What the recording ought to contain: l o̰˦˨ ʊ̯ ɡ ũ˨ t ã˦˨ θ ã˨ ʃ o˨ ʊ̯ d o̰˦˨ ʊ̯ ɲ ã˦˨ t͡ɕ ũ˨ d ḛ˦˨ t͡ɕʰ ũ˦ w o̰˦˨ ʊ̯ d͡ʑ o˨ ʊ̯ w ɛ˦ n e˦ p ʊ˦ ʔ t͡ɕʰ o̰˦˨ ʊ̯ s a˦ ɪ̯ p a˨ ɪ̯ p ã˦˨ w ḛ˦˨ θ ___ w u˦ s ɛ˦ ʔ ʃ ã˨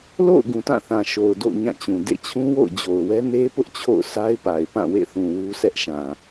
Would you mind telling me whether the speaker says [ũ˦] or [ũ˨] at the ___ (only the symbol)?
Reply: ũ˨